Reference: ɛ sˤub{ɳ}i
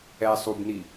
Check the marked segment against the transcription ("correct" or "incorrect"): incorrect